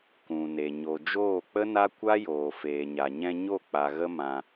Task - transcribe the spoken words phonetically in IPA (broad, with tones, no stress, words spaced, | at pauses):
kũ˨ne˨ ɲo˨d͡ʒoː˦˨k͡pə˦na˦ kʷa˦joː˨ feː˨ɲa˨ɲɛ̃˧ ɲo˦˨k͡pa˨ ɣə˦ mã˧